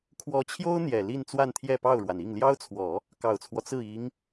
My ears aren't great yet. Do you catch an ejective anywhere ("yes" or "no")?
no